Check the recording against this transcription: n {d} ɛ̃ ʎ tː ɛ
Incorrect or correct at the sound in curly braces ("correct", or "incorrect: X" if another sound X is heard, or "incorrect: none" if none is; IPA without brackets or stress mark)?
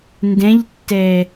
correct